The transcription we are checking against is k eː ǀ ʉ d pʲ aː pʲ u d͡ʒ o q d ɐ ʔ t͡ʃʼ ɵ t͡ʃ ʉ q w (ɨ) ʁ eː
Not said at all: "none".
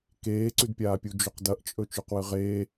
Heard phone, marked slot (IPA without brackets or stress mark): ɨ